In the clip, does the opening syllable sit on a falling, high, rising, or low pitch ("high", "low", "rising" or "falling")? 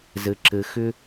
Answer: low